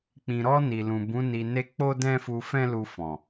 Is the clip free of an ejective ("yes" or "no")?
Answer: yes